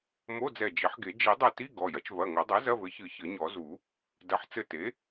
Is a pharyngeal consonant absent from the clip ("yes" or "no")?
no